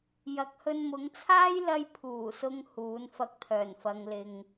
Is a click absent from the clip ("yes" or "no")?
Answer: yes